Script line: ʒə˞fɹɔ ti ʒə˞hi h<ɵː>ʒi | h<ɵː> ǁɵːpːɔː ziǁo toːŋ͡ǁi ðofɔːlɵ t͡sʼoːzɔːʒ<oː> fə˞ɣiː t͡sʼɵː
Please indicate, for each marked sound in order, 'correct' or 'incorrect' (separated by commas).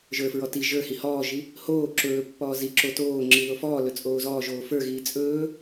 incorrect, incorrect, correct